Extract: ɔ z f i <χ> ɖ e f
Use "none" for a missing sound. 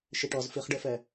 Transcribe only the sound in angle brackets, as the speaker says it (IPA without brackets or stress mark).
χ